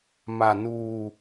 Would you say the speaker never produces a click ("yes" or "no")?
yes